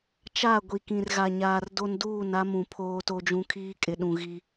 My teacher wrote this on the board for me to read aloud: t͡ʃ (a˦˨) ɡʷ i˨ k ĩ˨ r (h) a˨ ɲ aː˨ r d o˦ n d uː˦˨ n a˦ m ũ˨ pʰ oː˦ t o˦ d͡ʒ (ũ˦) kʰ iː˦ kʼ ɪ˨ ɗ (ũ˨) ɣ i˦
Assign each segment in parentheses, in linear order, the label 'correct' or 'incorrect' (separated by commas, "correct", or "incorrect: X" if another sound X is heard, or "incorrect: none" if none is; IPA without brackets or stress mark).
correct, incorrect: ɣ, correct, correct